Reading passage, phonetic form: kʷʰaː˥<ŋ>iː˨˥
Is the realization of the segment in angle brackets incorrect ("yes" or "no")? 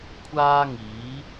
no